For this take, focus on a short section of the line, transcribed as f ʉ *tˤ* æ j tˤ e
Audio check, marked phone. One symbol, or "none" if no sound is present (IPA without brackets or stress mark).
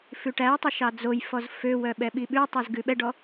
ʈ